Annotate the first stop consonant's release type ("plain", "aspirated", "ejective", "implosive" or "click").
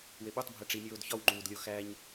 implosive